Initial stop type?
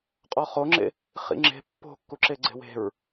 ejective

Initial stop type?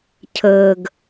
aspirated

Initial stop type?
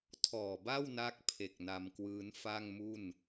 aspirated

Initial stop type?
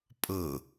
ejective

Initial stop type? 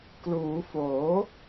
plain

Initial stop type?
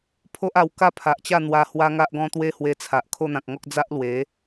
aspirated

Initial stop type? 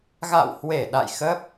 implosive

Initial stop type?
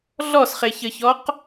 plain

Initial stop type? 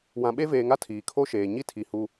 implosive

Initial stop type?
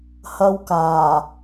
plain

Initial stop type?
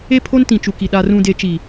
aspirated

